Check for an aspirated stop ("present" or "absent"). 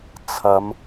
present